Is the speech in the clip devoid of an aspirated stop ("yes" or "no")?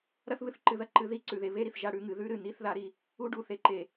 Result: yes